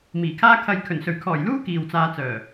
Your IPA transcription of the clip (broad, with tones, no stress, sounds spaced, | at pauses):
m iː˨˩ kʰ aː˥ kʰ ɐ˧ j kʰ ɵ˨˩ n s ɵ˨˩ ɥ kʰ ɔː˨˩ j l uː˥ k iː˨ w t͡s aː˧ t͡s œː˨˩